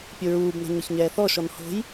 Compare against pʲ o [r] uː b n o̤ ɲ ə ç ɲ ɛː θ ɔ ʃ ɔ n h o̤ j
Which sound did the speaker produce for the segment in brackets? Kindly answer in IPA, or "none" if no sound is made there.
ɹ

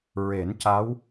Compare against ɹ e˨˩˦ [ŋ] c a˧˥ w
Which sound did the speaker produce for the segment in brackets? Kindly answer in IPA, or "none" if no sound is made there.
n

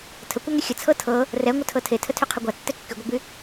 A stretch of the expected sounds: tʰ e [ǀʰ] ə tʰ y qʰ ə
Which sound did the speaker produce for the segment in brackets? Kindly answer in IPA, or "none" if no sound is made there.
tʰ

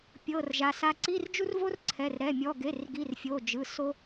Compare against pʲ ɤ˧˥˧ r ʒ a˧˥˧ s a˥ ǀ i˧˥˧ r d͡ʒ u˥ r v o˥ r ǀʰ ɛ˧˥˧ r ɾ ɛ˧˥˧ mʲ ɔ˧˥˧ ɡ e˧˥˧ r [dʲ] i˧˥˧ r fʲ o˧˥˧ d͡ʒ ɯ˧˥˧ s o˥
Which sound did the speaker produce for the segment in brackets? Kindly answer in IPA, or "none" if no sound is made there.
ɡ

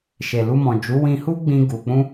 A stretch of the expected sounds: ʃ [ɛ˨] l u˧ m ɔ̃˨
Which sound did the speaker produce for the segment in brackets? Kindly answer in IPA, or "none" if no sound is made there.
e˨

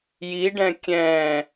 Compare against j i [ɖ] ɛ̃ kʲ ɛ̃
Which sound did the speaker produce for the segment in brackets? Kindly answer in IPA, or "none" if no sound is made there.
ɖ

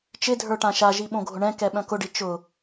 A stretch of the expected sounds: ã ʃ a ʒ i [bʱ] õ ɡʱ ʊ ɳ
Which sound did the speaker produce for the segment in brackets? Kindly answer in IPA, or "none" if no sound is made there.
ɓ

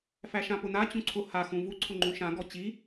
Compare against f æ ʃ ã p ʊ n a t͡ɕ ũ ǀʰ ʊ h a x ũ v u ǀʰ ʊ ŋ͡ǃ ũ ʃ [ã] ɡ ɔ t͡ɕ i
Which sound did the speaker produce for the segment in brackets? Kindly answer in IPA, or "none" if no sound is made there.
ã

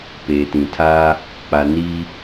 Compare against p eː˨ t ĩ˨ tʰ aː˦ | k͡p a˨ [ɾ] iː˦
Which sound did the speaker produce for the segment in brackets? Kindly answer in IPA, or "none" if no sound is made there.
n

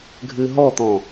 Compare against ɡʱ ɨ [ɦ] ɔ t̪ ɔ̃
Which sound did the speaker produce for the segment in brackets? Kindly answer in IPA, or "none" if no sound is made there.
ɦ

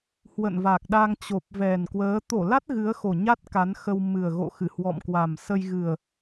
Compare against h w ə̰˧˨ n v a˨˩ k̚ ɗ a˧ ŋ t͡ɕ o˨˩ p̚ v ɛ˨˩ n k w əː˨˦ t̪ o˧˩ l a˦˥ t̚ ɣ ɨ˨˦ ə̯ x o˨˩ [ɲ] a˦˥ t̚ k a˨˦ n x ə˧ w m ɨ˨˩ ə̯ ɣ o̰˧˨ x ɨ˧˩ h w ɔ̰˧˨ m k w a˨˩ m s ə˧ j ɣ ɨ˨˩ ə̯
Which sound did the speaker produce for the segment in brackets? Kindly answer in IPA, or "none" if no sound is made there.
ɲ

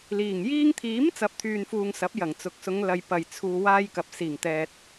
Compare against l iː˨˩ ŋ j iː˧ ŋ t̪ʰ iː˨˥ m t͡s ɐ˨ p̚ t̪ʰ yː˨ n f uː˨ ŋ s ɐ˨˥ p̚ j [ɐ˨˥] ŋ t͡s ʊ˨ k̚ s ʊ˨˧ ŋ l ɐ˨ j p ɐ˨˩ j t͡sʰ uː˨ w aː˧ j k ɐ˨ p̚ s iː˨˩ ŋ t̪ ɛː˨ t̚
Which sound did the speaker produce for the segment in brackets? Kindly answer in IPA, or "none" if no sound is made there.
ɐ˨˩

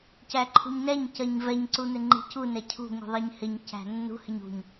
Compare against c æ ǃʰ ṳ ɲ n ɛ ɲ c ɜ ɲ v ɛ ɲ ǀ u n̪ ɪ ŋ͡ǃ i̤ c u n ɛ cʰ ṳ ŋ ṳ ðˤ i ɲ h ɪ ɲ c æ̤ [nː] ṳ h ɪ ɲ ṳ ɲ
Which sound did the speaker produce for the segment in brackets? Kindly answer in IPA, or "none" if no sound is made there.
nː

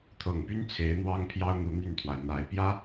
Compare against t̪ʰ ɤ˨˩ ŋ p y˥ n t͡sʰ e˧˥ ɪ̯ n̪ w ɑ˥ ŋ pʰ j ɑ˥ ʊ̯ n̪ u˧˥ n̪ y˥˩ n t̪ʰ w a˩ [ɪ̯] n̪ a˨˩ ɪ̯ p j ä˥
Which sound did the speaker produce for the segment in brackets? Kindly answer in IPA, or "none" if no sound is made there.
ɪ̯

